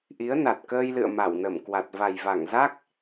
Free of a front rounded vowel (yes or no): yes